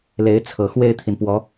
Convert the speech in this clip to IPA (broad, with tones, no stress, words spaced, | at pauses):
le˧˥ɪ̯t͡sʰɤ˨˩ xwe˥˩ɪ̯t̪ʰi˩npwɔ˧˥